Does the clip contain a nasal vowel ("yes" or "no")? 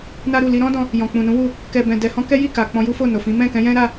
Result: yes